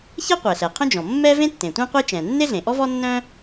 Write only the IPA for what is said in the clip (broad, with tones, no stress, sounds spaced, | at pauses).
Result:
ç ɛ˥ qʷ ɛ˩ ɬ ɛ˩ qʰ œ̃˥ d͡ʒ ɔ̃˩ mː ɛ˥ v ẽ˥ tː ẽ˩ tʷ ɛ̃˥ qʷ e˥ t͡ʃ ɛ̃˩ nː e˥ ɮ ẽ˩ ʔ ɔ˥ v ɔ˥ nː œ̃˥